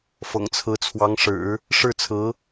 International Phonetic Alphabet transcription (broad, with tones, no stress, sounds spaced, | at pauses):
f ɤ̰˨˩ ŋ t͡sʰ ɹ̩˧˥ t͡sʰ w ɑ˧˥ ŋ ʂ ɻ̩˨˩˦ | ʂ ɻ̩˥˩ t͡sʰ ɹ̩˧˥